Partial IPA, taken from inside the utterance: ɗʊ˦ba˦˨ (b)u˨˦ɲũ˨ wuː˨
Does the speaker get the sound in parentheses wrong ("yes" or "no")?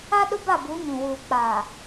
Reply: no